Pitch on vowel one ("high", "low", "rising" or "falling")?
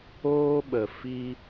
high